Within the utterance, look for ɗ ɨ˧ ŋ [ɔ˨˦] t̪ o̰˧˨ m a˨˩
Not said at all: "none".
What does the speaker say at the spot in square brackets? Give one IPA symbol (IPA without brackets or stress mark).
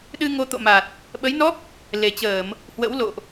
o˨˦